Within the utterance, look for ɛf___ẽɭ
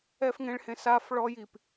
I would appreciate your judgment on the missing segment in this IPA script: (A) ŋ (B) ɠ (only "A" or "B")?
A